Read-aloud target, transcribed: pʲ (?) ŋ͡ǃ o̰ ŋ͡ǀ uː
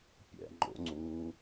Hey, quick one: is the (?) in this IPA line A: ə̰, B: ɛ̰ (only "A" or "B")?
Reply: B